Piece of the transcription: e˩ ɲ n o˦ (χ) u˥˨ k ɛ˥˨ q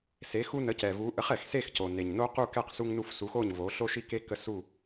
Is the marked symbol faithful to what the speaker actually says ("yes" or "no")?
no